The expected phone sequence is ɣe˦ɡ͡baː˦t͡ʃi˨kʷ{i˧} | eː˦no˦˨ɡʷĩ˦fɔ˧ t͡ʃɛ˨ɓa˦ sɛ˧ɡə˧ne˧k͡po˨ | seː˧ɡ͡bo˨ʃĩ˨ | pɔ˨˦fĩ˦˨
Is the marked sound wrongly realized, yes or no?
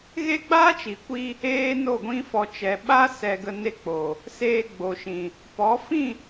no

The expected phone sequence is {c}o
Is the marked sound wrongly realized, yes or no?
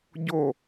yes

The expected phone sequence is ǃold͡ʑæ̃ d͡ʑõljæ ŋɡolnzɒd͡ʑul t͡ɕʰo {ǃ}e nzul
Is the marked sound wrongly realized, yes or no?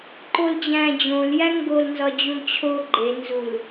yes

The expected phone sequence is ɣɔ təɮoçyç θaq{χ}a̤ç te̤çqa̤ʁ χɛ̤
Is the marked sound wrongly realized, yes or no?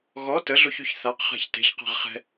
no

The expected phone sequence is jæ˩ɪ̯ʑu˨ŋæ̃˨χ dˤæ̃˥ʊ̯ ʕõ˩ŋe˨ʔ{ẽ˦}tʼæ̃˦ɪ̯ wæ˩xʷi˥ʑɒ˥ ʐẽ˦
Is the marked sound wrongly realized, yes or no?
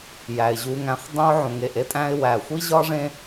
yes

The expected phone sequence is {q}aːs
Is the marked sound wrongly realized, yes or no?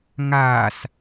yes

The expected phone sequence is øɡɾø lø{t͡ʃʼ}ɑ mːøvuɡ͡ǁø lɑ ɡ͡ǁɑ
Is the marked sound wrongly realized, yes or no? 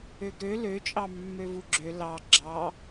no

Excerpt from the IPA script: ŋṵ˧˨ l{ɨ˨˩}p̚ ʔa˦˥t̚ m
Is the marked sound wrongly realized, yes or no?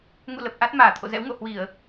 yes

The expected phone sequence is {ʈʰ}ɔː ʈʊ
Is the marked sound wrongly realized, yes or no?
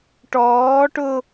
yes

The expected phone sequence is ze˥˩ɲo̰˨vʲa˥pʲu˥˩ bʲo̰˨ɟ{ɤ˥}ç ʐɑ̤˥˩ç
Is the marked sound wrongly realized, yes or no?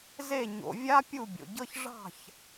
no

